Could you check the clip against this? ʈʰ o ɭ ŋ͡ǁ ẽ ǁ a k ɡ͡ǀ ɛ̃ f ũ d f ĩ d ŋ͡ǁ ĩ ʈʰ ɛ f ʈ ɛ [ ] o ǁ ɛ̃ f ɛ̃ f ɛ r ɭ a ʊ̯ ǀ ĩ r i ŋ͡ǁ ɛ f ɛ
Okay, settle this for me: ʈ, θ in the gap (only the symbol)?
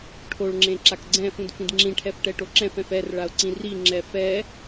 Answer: ʈ